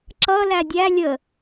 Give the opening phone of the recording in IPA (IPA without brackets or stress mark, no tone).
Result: ǁ